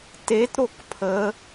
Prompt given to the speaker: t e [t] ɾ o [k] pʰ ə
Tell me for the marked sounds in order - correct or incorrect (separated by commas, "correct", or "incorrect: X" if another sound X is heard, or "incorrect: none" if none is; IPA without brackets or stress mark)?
correct, correct